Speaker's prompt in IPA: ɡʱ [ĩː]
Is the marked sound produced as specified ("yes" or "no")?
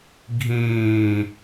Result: yes